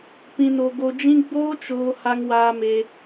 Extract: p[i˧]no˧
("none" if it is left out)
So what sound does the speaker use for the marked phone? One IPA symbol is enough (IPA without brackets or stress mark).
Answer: ĩ˧